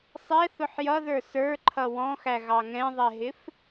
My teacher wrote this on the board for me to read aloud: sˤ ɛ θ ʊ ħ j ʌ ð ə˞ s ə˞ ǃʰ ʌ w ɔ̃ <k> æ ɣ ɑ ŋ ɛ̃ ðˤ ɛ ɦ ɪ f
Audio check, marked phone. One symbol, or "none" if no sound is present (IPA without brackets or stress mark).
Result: x